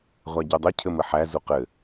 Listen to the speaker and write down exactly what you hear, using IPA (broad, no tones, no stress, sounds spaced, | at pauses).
ʁʷ æ ɟ ʉ dˤ ɘ cʰ ɘ m ɘ ħ æ z u q ɘ